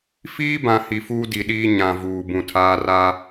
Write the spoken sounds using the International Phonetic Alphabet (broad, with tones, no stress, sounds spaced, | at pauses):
f iː˦ b ã˨ h i˨ f uː˦ d i˨ ɗ iː˦ ɲ ã˨ v uː˨ b ũ˨ tʰ aː˦ r a˦